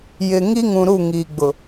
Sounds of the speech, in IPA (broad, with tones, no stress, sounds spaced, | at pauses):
j ɪ˨ ŋ i˦ ŋ ũ˨ ɾ u˦˨ ŋ iː˨ ɡ͡b ʊ˨